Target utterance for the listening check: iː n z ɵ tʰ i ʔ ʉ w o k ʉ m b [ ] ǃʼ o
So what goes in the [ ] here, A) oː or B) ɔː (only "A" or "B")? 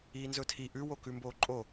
A